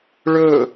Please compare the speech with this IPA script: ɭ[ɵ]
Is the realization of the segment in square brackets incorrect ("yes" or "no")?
no